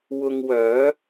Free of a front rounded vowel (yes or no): no